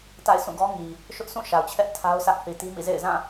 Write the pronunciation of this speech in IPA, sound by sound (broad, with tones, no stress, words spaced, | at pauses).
ta̰˦˨ɪ̯ sũ˦˨ɡɔ˦ŋi˨ | ʃʊ˦ʔsʰũ˦˨ ʃa˨ʊ̯t͡ɕʰɛ˦ʔ tʰa˦ʊ̯sä˦ʔ θi˨ti˦mḭ˦˨zḛ˦˨ɪ̯ zã˦˨